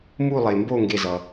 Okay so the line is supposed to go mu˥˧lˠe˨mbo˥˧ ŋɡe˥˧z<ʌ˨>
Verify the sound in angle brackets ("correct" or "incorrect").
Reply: correct